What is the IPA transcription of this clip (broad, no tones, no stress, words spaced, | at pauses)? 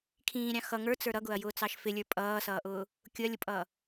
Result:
kʰĩːɾʲɑ̃ xʌ ŋə˞t͡sə˞ ɾʌɡʊɐ̯jʊːt͡sɑʃ fɪlʲə˞ pʼʌːsʌːʔʊː | kʲʊɐ̯lʲʊpʼʌː